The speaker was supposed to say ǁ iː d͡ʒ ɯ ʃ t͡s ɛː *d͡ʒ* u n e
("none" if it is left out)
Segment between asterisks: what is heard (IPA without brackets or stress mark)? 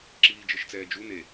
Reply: d͡ʒ